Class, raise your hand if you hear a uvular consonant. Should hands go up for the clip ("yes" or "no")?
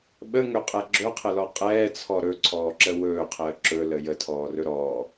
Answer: yes